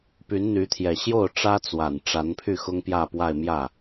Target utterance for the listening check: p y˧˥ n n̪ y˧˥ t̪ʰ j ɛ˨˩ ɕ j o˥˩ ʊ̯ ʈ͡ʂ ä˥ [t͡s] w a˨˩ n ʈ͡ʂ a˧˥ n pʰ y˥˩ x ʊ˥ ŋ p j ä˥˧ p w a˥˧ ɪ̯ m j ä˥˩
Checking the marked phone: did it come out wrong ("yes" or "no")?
no